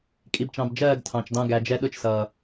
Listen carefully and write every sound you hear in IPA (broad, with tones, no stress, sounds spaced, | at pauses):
kʼ i˨ b t͡ʃ ɑ̃˨ b d͡ʒ ɜː˦˨ ɡ tʰ ɑ̃˨ t͡ʃ d ɑ̃˦ ɡ æ˨ d͡ʒ ɛ˦ ɗ ʊ˦ t͡ʃ s ʌː˨